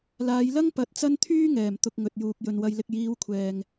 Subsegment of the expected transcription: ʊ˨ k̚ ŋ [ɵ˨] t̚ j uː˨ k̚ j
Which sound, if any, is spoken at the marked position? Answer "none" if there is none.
ɵ˨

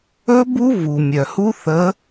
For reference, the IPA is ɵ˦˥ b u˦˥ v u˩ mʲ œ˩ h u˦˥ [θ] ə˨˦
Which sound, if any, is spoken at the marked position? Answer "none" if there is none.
θ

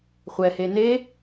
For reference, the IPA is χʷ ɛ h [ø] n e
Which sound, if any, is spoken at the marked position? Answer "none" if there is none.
e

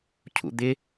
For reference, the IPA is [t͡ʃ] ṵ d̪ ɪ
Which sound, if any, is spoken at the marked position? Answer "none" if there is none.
cʰ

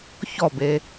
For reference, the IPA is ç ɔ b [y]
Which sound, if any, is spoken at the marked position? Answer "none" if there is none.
e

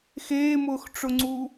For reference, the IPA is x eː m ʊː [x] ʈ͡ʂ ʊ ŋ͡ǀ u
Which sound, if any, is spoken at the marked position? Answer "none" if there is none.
x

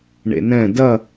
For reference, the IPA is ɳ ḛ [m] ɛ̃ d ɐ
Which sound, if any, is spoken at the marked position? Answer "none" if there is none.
n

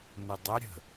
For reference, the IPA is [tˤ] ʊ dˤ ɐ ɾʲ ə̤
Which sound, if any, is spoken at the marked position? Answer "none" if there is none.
n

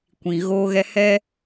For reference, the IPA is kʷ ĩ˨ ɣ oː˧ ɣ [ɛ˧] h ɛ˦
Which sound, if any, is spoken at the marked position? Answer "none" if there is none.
ɛ˧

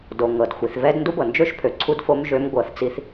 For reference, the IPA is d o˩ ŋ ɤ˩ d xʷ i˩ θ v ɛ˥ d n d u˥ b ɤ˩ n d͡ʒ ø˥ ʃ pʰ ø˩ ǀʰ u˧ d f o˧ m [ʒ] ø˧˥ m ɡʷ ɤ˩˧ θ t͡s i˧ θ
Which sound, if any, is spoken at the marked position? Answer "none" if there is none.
ʒ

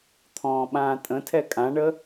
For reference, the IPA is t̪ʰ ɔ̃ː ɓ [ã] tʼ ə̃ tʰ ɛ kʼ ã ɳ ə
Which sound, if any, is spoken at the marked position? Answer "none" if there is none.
ãː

